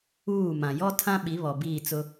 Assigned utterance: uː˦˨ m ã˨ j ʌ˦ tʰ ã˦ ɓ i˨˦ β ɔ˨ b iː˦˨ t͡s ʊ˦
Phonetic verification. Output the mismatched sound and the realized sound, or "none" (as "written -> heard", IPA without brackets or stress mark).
ʌ˦ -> ɔ˦